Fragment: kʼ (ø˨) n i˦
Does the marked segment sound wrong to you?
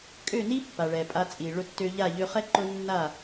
yes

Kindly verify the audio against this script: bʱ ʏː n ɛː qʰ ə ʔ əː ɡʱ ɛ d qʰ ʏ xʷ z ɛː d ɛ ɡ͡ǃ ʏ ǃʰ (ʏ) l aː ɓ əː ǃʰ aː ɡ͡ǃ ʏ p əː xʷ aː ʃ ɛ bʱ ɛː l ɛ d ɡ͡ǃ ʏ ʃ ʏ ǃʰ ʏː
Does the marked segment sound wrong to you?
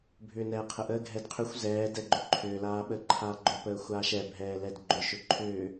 yes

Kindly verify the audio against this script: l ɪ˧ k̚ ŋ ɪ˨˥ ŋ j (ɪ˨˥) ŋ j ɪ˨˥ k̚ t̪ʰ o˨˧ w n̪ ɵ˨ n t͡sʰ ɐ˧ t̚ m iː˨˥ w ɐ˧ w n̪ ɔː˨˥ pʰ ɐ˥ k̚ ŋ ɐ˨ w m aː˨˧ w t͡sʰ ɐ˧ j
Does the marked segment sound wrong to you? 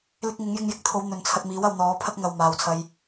yes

